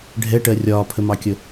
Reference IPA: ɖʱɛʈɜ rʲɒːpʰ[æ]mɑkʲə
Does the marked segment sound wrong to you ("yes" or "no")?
yes